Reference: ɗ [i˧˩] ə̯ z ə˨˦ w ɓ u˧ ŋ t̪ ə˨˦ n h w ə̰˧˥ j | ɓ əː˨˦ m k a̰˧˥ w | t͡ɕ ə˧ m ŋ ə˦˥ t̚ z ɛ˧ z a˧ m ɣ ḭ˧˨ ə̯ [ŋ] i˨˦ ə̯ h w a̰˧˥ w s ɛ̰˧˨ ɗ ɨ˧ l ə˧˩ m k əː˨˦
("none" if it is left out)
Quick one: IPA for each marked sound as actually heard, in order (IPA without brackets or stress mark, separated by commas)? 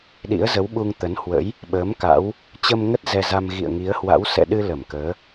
ḭ˧˥, ŋ